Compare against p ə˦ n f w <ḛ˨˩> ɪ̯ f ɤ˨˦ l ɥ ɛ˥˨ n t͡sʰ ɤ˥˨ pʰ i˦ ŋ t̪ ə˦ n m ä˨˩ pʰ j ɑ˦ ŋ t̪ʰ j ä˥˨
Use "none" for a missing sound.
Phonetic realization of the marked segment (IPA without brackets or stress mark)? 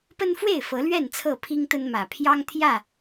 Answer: e˥˨